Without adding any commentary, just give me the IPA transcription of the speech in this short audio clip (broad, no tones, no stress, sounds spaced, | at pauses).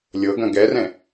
lʲ ɤ ɡ ɐ̃ ɡ ɛ r ɛ̃